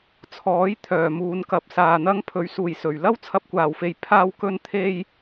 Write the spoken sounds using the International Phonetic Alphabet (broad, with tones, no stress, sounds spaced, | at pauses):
t͡sʰ ɔː˨˥ j t̪ʰ œː˨˩ m uː˨ n k ɐ˨˥ p̚ s aː˨ n̪ ɐ˥ ŋ pʰ ɵ˨˥ ɥ s uː˨˩ j s ɵ˨˩ ɥ l ɐ˥ w t͡sʰ ɐ˧ p̚ kʷ aː˨˩ w f e˨ j pʰ aː˧ w k ɵ˧ n t̪ʰ e˧ j